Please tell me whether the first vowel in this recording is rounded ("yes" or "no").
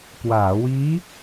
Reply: no